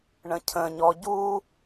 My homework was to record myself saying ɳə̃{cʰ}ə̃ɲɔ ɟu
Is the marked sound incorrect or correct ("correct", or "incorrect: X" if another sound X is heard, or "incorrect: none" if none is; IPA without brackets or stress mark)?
correct